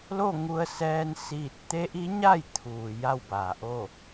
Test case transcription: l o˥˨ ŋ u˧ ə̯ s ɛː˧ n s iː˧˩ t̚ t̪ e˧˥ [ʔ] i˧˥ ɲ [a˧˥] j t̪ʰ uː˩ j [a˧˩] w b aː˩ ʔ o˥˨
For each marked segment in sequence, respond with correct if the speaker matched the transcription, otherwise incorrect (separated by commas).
correct, incorrect, incorrect